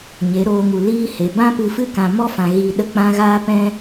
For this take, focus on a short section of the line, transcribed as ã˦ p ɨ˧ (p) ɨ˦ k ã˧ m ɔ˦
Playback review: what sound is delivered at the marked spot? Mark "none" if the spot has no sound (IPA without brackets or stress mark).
f